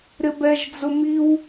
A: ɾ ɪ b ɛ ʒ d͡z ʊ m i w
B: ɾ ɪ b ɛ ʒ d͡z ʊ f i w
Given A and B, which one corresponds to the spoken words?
A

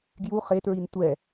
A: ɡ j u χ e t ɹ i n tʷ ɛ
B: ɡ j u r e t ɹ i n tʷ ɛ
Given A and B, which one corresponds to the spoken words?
A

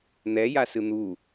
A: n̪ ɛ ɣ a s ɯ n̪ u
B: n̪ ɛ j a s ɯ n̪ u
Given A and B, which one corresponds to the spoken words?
B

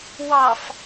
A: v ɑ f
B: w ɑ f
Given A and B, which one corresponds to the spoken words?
B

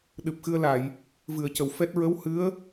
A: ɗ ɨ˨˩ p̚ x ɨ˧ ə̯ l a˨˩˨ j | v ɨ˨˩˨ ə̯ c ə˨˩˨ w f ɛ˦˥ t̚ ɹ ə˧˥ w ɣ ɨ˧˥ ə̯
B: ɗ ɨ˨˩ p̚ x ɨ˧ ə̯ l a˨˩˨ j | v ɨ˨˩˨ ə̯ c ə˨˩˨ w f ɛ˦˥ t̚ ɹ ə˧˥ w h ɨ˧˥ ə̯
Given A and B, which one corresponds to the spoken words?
B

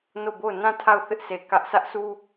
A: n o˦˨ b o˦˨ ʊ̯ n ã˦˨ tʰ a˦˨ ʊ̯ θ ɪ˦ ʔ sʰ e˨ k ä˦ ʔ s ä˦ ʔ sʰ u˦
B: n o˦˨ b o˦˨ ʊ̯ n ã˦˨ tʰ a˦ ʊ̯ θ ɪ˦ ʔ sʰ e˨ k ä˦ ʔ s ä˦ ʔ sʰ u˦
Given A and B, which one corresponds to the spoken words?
A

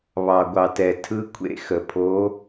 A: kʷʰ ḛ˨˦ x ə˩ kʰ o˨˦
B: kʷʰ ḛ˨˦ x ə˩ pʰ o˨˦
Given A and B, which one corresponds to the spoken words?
B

